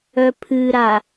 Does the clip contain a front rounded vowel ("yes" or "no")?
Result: yes